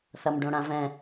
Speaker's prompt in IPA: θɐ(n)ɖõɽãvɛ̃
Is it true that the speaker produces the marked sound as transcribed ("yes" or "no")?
no